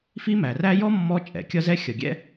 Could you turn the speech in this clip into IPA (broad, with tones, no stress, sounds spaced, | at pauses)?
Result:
f i˦ m æ˩ r æ˦ j ɔ˥ mː ɔ˦ t͡ʃʼ ɛ̰˩ kʲ ʌ˥ z ɛ˥ xʲ ʌ˩ ɡʲ ɛ̰˥